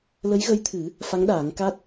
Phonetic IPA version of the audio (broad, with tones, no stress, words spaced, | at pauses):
lə˧˥jɣə˧˥jt̪ʰɨ˨˩˦ | fa˧˥ŋ ɗaː˨˩˦ŋka˦˥t̚